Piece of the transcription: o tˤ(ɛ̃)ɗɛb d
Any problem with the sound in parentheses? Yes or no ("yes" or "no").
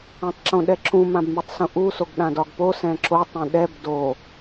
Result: no